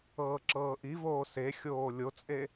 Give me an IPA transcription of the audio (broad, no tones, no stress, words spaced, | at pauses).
ɤːǁɤːʔivoː sexʲoː lʲot͡sʼe